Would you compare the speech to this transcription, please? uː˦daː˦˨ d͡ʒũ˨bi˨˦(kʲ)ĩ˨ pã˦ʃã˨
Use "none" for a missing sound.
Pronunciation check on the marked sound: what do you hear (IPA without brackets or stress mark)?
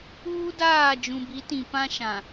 t